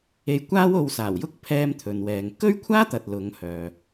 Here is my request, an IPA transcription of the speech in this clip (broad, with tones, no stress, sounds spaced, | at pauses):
e˧ j kʷ aː˥ w o˧ w s aː˨˩ w j ʊ˥ k̚ pʰ ɛː˧ m t̪ʰ ɵ˧ n w ɛː˧ ŋ k ɵ˥ ɥ kʷʰ aː˥ t̪ ɐ˨ t̚ l ʊ˨˧ ŋ h œː˨